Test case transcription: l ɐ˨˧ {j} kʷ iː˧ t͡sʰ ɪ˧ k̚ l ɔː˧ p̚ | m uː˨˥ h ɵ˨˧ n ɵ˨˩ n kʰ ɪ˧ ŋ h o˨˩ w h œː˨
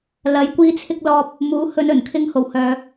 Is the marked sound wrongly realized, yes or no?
no